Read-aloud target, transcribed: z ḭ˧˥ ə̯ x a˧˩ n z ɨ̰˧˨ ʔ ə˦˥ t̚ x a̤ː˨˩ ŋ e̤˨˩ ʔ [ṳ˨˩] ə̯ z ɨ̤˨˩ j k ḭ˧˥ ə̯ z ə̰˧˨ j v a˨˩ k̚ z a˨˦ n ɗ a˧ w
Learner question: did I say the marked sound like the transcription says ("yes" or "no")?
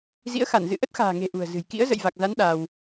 yes